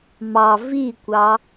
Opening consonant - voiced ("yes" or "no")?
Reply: yes